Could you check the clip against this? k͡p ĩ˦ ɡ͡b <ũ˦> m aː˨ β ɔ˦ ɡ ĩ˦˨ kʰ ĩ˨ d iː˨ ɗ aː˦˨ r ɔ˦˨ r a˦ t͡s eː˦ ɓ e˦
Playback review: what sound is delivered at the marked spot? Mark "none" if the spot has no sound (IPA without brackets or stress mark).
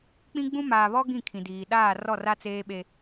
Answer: ũ˦